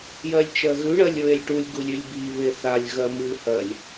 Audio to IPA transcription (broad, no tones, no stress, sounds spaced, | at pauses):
j ɜ lʲ t͡ʃ ɜ ɣ ʉ ɳ ɜ lʲ ɹ e lʲ ʈ u lʲ ɡ u lʲ ʉ lʲ b i β e θ a lʲ ɣ ɜ m ɨ h ɜ lʲ